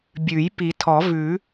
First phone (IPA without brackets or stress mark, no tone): bʲ